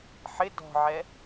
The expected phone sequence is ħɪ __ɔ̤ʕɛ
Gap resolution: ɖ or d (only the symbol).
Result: d